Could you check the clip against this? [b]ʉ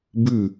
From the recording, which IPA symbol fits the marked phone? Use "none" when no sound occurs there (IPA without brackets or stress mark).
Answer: b